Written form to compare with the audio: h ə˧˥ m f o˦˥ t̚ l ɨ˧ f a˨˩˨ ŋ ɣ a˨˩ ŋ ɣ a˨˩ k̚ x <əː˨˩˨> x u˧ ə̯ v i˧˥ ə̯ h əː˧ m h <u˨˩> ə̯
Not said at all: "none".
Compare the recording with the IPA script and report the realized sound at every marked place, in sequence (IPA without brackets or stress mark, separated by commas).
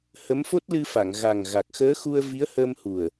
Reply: əː˧˥, u˨˩